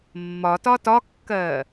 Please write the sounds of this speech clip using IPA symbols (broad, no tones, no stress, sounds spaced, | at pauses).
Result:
mː ɒ t ɒ t ɒ kː ɜː